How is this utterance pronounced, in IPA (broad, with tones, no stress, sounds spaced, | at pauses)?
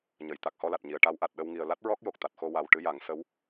ɲ ə˨˩˨ j t̪ a˨˩ k̚ h ɔ˧ l a˨˩ t̚ ɲ i˨˩˨ ə̯ ʈ a˧˥ w ʔ a˨˩ t̚ ɗ ə˧ w ŋ i˨˩ ə̯ l a˦˥ t̚ ɹ ɔ˦˥ k̚ j o˨˩ k̚ t̪ a˨˩ t̚ x o˧ w a˨˩ w ʈ ɨ˧˥ j a˨˩˦ ŋ s ə˧˥ w